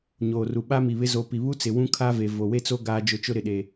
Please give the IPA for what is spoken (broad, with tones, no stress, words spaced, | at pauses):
ɲoː˨ru˨ ɓa˦mi˨βɪ˦ zo˨pi˨βu˦t͡sɪ˨ wũ˦kʰa˦ve˨ vo˨we˦t͡so˦ ɡaː˦d͡ʒʊ˦˨t͡ʃʊ˦ ɾɪ˨ɗe˨